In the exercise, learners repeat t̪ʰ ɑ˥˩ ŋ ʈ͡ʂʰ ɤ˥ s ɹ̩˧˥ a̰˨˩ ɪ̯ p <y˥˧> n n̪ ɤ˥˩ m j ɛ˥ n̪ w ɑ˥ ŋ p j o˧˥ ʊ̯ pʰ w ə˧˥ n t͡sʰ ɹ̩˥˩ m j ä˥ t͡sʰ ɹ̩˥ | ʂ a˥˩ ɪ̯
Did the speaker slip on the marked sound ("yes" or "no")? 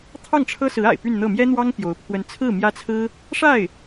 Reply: no